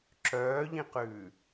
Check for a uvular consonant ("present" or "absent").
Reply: present